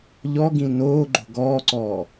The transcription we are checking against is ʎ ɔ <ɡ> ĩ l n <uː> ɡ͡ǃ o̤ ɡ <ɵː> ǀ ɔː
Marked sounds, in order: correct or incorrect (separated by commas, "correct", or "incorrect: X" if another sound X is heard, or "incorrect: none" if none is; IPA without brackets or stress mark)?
correct, incorrect: oː, incorrect: ɔː